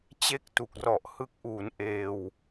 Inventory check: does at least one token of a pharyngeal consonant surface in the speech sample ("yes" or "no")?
no